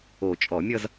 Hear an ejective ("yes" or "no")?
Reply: yes